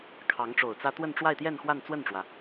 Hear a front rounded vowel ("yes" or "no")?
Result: no